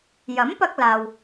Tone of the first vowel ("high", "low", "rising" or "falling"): rising